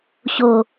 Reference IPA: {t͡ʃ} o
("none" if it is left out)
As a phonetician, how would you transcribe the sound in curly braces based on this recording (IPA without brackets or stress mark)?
ɕ